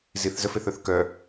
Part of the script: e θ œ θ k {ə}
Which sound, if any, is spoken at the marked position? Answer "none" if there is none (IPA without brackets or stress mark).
œ